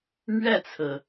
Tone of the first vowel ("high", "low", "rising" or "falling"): falling